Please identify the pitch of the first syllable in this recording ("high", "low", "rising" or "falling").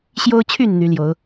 high